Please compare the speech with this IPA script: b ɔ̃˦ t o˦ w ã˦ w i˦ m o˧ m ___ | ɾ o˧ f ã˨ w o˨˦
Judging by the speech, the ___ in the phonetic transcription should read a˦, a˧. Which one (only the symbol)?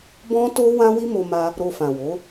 a˧